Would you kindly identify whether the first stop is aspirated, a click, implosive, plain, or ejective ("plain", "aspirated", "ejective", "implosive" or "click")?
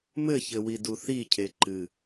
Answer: plain